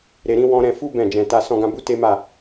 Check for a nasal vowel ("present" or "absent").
present